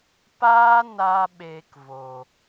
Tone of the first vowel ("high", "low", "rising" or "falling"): high